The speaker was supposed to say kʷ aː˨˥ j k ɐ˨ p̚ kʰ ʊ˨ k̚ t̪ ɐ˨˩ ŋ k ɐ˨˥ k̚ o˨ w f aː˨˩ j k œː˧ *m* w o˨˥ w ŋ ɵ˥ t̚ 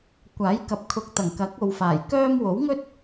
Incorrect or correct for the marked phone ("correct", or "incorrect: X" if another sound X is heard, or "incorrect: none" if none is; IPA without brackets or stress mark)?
correct